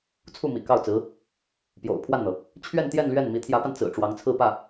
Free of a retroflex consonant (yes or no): no